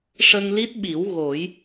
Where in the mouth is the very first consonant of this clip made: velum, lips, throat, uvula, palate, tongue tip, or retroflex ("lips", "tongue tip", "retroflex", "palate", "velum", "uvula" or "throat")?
retroflex